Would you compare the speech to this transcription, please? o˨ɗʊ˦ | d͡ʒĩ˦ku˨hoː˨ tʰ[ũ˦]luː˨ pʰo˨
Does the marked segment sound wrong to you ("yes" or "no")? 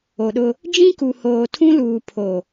no